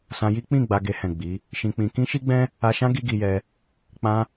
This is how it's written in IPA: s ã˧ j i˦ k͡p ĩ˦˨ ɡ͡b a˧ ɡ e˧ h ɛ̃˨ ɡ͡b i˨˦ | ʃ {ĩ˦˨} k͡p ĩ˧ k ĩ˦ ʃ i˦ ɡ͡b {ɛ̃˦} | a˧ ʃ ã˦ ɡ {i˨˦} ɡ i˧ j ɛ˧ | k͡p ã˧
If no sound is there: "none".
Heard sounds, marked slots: ĩ˧, ɛ̃˦, i˦

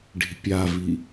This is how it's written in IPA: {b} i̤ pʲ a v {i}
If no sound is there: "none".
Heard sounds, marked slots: ɖ, i

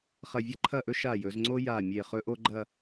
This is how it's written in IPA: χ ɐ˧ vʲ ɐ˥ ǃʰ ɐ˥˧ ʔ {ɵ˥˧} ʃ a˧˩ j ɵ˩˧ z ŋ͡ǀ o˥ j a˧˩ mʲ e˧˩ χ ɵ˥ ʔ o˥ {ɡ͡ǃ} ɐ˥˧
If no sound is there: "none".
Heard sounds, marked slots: ɵ˥, ɡ͡ǃ

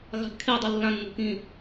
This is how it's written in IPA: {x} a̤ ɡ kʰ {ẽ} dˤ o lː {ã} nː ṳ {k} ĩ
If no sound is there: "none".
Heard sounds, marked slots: ɣ, e, ã, k

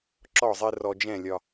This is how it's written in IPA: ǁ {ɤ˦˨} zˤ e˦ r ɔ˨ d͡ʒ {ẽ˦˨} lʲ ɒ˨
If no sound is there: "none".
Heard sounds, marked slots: ɔ˦˨, ɛ̃˦˨

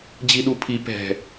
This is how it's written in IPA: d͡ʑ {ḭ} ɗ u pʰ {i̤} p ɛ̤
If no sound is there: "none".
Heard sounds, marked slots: i, i

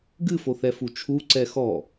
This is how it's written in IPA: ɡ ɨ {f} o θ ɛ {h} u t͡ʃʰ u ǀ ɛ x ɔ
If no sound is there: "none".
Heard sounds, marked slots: f, f

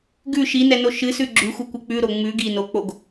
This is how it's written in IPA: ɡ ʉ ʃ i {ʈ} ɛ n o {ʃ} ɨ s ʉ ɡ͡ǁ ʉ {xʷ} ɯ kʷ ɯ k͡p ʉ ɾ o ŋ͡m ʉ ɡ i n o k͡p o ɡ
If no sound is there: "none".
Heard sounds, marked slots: n, ʃ, xʷ

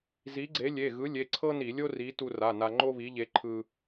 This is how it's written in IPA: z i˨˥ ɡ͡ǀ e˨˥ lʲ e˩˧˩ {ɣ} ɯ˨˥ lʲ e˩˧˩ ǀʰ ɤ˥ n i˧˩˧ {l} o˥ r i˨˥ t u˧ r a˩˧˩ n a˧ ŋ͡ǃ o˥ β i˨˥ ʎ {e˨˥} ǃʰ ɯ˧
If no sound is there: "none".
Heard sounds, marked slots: ɣ, lʲ, e˨˥

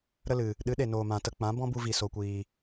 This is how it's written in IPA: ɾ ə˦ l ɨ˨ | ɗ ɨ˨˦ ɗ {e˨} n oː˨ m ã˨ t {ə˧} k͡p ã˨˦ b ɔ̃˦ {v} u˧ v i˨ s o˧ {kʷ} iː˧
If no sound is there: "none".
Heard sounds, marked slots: e˨, ə˧, b, kʷ

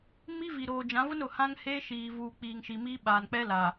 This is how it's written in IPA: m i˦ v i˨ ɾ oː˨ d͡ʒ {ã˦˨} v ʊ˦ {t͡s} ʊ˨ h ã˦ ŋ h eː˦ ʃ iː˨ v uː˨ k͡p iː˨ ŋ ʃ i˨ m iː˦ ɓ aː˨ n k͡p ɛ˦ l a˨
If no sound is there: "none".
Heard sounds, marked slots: ã˨˦, n

